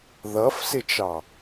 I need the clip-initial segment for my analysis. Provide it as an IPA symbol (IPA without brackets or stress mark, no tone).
ð